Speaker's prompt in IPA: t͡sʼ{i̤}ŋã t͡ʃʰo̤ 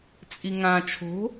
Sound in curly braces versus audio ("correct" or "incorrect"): incorrect